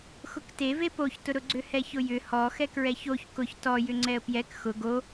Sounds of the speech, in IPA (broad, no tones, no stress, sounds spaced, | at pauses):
x ʊ k t e v e p o ç t ʊ ɾ ʊ ɡ͡ǀ ʏ h ɛ ç ʊ j ʏ h ɔ x ɛ k ɹ ɛ ç o ç k ʊ ç t ɔ j ʏ ŋ͡ǀ ɛ ə̯ p j ɛ k x ʊ ɡ o